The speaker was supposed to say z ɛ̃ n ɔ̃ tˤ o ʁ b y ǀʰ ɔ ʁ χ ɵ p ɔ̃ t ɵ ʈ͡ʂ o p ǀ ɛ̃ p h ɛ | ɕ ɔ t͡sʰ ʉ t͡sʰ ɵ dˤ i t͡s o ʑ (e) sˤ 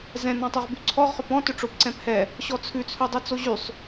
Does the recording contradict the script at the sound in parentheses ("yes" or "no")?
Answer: yes